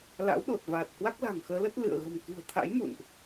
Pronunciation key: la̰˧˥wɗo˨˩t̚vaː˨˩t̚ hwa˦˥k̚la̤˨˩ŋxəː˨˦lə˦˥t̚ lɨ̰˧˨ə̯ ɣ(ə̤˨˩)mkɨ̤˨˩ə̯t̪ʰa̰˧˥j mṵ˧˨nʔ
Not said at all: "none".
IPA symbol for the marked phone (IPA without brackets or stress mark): ə̤˨˩